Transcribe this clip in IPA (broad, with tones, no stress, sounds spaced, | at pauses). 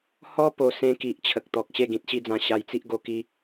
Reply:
h ɔ˦ p o˧ s ẽ˦ k i˨ ʔ t͡ɕʰ ə˨ k̚ t̪ ɔ˨ k̚ ɕ e˥˧ ɡ ĩ˨ t̚ ɕ i˥˧ d͡z ã˧ ɕ a˧ j t͡s i˦ ʔ ɡ o˧ k i˦